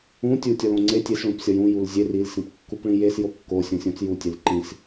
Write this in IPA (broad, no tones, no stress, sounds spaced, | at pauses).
ũ tʲ u tʲ ɒ l õ ŋ͡ǀ e tʲ e s ɭ ũ p sʲ ɒ j ũ j u l zʲ e r i l s ĩ p kː u p ɭ ĩ j e s j o kː o sʲ õ sʲ õ t͡s j u tʲ e l ǃ ĩ s